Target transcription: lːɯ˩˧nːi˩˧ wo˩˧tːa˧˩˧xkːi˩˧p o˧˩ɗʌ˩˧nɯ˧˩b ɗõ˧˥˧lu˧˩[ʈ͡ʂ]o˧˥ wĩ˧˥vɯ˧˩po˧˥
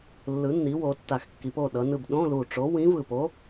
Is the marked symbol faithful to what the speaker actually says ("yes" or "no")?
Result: yes